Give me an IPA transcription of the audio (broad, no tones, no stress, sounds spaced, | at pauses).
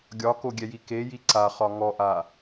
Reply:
ɡʲ ɒ k o ɡʲ ɛ j i k e j i ǀ a χ ɒ ŋ ɔ ʔ a